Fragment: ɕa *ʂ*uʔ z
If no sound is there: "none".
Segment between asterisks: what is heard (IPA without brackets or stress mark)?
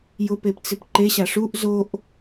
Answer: ʂ